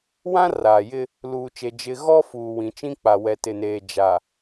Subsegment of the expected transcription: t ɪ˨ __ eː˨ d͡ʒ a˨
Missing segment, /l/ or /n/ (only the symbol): n